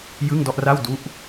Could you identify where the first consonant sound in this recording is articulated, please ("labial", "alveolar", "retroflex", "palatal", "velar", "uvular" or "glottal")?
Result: palatal